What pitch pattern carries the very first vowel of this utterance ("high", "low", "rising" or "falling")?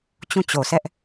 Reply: falling